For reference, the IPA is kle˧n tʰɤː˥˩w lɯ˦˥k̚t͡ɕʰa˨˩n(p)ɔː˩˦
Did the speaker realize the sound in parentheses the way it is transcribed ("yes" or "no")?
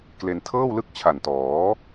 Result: no